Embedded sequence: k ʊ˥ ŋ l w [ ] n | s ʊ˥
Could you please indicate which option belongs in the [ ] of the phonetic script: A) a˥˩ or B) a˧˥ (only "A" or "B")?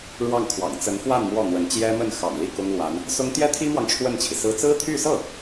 B